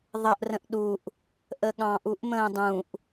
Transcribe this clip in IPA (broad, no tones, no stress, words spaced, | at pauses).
ðˤəʔ rə̃ʔɗuʔ | ʔəɠɑ̃ʔ uʔmə̃ːdˤũʔ